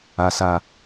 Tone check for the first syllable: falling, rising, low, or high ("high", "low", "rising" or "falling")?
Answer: low